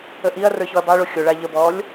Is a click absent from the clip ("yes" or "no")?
yes